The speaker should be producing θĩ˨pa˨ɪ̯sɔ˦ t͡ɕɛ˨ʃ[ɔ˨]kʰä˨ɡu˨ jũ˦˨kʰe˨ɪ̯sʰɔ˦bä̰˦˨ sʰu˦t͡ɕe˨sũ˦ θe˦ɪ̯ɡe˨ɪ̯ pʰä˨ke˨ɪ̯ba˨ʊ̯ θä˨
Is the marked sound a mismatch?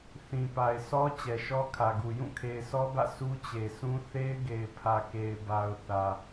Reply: yes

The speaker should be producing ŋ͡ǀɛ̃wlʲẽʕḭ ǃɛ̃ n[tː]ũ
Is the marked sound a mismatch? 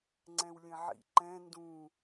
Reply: yes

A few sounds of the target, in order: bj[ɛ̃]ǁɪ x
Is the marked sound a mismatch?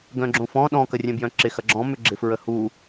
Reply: yes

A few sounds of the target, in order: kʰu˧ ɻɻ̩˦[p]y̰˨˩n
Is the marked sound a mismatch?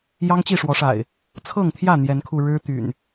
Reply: yes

